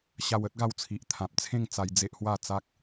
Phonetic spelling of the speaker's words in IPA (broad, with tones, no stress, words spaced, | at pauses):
ɕa˧wə˦t̚ɡa˧wt͡sʰi˨ʔ t̪ʰã˨p̚t͡sʰẽ˥˧ŋt͡sa˧j d͡ze˦ʔhwa˥˧ t͡sa˦k̚